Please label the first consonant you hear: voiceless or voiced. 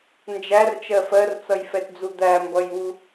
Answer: voiced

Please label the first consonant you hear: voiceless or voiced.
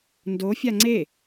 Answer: voiced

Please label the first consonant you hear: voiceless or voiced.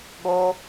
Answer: voiced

